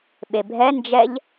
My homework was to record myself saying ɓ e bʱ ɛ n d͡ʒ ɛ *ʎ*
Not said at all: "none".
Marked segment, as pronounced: ʎ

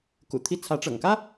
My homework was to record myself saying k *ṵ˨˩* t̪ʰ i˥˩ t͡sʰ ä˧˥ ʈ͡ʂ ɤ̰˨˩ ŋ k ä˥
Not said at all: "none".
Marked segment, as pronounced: ṵ˨˩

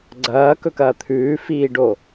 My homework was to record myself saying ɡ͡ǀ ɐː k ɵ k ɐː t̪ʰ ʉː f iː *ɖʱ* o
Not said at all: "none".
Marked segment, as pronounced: ɖ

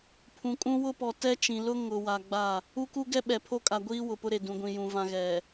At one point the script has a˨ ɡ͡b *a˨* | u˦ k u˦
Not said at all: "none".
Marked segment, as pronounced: a˦˨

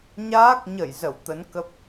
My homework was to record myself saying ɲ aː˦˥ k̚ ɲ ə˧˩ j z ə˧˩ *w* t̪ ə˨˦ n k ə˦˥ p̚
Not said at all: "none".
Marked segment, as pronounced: w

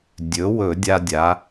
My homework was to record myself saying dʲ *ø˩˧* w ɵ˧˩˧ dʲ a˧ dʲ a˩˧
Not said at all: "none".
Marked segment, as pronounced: ɵ˩˧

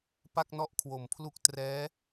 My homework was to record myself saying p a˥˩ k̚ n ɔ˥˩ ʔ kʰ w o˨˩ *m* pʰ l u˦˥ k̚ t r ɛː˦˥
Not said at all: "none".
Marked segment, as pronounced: m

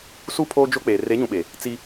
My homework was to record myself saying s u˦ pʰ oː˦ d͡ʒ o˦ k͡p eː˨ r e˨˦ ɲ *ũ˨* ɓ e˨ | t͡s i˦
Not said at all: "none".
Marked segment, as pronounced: ũ˨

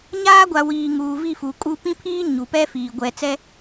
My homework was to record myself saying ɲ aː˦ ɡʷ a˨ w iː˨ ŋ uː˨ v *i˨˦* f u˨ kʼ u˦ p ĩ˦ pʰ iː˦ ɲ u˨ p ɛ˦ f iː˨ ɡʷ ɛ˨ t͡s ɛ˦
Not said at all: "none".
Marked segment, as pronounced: i˦˨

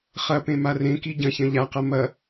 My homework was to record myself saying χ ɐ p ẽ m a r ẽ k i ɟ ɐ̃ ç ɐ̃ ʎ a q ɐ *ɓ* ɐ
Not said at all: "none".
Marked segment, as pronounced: m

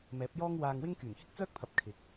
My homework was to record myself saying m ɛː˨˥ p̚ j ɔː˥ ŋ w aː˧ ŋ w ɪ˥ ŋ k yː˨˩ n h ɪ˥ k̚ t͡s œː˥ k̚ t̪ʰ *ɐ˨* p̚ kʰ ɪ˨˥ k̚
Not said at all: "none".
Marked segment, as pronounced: ɐ˨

